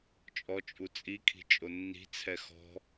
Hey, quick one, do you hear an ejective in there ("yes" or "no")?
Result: yes